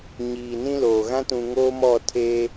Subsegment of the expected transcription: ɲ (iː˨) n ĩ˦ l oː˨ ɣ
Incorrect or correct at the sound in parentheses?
correct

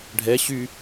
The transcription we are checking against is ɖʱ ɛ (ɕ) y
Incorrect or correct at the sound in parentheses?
correct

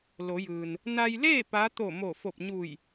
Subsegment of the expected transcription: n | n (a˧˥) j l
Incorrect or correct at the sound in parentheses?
incorrect: a˧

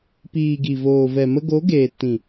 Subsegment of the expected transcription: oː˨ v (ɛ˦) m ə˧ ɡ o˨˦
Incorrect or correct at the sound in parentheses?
incorrect: ɛ˨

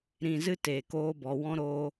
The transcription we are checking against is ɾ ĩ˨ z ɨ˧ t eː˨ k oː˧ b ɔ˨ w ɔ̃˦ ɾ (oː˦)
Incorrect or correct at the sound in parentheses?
incorrect: oː˧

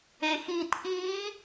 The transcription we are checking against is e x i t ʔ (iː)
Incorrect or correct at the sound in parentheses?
correct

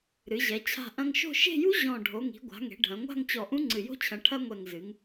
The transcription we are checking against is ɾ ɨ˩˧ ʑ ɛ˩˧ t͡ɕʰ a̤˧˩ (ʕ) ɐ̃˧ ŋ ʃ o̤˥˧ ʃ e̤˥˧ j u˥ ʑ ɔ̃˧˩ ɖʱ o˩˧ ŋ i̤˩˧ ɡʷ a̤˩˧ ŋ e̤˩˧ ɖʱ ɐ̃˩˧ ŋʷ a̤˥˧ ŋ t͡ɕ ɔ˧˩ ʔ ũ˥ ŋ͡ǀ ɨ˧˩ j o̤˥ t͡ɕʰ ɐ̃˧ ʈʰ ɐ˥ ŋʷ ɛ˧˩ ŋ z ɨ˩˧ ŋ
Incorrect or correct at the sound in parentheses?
incorrect: ʔ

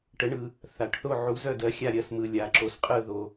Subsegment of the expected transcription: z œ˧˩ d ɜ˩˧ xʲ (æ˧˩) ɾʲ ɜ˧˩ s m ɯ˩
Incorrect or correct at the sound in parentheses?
incorrect: a˧˩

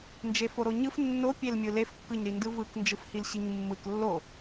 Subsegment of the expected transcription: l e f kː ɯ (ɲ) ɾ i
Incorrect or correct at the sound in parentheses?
correct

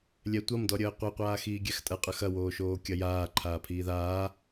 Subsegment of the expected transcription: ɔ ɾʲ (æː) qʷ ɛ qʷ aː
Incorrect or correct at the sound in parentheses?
incorrect: əː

